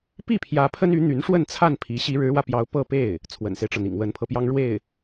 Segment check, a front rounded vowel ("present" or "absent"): present